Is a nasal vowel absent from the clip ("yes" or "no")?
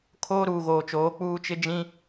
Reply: no